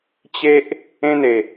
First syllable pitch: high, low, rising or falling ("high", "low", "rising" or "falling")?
high